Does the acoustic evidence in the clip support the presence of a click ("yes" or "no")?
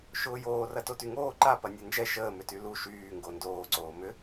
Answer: yes